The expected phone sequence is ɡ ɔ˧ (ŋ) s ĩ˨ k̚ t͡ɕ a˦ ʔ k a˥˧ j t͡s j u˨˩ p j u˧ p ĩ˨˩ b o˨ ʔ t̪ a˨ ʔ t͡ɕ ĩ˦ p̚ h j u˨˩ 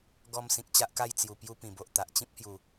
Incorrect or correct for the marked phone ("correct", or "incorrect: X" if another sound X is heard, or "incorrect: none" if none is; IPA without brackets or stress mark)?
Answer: incorrect: m